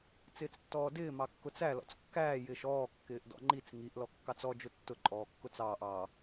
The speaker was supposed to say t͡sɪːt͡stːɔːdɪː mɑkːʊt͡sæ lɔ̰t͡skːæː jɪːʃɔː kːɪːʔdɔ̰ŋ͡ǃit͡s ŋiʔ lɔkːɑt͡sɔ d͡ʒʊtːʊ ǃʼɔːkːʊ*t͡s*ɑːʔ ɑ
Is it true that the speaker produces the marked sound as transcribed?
yes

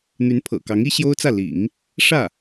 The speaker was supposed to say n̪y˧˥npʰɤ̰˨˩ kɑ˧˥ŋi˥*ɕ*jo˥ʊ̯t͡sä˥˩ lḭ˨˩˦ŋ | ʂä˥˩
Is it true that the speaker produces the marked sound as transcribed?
yes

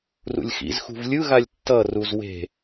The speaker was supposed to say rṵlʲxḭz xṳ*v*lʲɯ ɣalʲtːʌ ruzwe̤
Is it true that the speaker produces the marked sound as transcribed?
yes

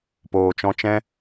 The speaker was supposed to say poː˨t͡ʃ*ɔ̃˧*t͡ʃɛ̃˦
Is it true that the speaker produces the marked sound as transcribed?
yes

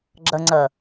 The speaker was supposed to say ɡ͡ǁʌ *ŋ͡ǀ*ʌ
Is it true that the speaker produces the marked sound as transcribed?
yes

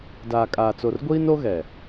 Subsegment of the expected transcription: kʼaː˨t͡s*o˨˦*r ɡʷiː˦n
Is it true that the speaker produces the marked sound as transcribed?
no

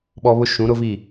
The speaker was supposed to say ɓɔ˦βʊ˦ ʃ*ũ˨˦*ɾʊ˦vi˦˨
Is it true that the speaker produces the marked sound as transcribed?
yes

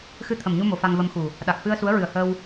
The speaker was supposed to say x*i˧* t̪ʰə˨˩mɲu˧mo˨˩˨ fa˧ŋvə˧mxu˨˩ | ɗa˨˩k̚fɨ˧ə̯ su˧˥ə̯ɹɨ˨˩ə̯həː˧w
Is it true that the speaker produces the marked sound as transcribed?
no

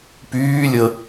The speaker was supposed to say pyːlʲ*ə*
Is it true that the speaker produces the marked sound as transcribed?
yes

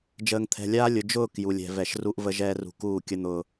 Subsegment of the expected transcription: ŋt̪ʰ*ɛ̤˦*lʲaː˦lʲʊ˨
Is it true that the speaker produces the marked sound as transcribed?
no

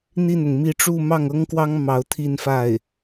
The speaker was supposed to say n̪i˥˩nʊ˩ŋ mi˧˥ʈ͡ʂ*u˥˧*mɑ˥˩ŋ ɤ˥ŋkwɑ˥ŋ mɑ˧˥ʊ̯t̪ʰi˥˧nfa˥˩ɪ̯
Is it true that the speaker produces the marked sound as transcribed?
yes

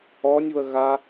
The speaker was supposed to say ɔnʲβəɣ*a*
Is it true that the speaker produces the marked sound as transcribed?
yes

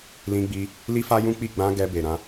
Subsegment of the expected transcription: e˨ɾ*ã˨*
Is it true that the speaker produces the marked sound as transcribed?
no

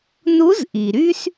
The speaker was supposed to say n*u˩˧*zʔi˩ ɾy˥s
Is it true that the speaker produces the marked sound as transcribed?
no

